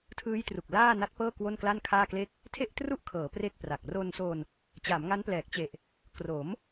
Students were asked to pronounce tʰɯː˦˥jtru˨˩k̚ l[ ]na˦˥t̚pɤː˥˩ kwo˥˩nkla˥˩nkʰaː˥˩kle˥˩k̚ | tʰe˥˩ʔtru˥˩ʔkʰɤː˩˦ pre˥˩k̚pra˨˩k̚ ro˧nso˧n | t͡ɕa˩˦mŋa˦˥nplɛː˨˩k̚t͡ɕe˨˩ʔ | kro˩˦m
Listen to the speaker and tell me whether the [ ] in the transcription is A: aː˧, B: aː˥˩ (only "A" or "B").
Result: B